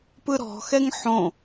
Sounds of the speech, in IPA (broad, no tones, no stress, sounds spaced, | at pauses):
p ɯ ɾ ɔ̤ x ɛ ŋ ħ õ